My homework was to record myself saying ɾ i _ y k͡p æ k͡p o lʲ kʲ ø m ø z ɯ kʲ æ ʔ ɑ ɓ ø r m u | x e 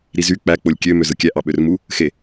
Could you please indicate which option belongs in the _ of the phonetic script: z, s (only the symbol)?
z